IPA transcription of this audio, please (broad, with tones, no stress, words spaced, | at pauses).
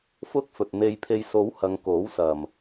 fʊ˥k̚fɵ˧t̚ n̪e˧j pʰe˧jso˨˥whɐ˨˧ŋ ko˨˥wsɐ˨m